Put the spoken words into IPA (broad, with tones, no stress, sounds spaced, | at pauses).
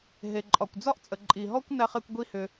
ɦ e˨ ǃʼ ɒ˨ kʷ d͡z ɒ˦ ʔ t͡sʼ ə˨ ǃʼ i˨ ɦ ɔ˦ kʷ n æ˧ χ ɛ˧ kʷ ɡʷ i˦ h ʏ˧